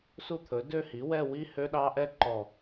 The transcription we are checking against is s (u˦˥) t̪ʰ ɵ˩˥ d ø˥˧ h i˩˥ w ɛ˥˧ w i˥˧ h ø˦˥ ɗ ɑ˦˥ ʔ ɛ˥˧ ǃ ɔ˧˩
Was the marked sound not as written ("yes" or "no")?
yes